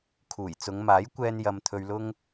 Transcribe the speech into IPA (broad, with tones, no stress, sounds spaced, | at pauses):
kʰ uː˨˩ j t͡s ʊ˨˧ ŋ m aː˨˥ j kʷ ɛː˧ n j ɐ˧ m t̪ʰ ɵ˧ ɥ l ʊ˥ ŋ